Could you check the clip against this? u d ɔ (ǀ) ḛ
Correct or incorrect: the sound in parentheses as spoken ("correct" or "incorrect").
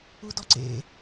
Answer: correct